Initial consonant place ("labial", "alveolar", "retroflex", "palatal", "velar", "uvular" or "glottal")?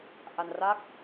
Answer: glottal